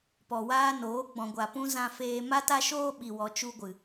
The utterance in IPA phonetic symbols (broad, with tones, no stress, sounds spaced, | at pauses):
p ɔ˨ w aː˧ n oː˨˦ ɡ͡b ɔ̃˨ ɡʷ a˨ p ũ˧ z ã˧ f eː˧ m a˦ t a˦ ʃ oː˦ ɓ i˨ w ɔ˨ t͡ʃ u˧ ɡʷ ɨ˨